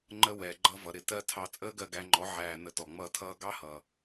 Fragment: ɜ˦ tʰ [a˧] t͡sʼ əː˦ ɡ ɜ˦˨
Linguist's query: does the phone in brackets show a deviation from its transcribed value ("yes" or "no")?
yes